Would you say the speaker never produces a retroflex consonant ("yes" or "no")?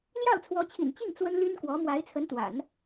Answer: yes